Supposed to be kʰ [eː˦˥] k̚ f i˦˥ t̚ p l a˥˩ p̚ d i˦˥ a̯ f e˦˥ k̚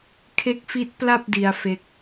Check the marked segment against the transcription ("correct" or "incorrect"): incorrect